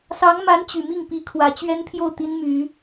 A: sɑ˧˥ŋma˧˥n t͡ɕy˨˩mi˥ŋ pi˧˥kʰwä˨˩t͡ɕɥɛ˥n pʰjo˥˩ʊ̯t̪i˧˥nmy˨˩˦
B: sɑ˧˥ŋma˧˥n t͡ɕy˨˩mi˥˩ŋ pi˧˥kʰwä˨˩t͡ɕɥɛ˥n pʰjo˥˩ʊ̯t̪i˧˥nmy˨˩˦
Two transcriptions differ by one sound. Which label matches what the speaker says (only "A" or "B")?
B